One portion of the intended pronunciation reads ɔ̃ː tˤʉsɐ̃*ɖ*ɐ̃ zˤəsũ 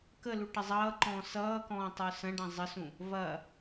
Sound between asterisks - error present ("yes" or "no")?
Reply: no